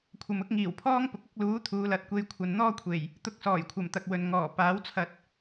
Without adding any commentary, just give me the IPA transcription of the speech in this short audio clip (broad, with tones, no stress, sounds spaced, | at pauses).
kʷʰ ɐ˨ m ʊ˨˥ k̚ ŋ iː˨˩ w pʰ ɔː˥ ŋ p ʊ˨˥ k̚ ʊ˨˥ k̚ l uː˨˥ t̪ʰ uː˨˧ l ɐ˨˥ t̚ kʷ e˧ j kʷʰ ɐ˨ n n̪ ɔː˥ kʷʰ e˨˩ j | t̪ ʊ˧ k̚ s ɔː˨˩ j kʷʰ ɐ˨˩ m t̪ ɐ˨ k̚ w ɵ˨ n ŋ ɔː˨˩ p aː˨˥ w t͡sʰ ɐ˧ t̚